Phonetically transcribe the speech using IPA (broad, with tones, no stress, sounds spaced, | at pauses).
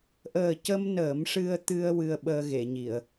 ʔ əː˨˩ c ə˧ m n əː˨˩˦ m ʂ ɨ˧ ə̯ t̪ ɨ˧ ə̯ w ɨ˧ ə̯ ɓ əː˧ ɣ e˨˩˨ ɲ i˨˩˨ ə̯